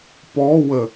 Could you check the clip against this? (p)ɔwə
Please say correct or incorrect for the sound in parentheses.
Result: correct